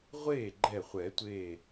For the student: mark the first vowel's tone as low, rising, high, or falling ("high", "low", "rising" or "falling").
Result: falling